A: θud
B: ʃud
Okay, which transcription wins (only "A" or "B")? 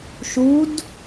B